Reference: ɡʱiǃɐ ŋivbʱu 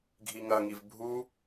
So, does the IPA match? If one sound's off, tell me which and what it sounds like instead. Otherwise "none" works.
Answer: ǃ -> ŋ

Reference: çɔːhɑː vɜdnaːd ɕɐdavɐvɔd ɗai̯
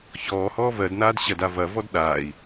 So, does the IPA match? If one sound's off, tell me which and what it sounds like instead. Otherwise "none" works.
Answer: ɑː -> ɔː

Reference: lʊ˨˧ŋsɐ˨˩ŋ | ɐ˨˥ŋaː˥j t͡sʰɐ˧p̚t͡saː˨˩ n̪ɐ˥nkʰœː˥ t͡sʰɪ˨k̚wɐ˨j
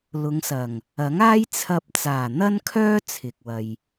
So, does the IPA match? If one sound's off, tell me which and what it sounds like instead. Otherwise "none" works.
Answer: none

